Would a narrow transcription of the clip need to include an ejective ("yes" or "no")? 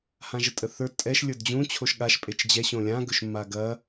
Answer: yes